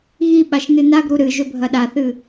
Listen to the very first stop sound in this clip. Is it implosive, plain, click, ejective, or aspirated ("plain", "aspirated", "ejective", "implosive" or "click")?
implosive